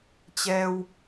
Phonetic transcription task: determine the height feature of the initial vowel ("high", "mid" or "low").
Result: mid